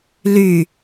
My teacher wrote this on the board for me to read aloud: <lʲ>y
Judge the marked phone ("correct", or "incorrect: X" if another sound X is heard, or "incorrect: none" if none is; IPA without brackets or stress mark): incorrect: l